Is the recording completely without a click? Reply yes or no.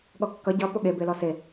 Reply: yes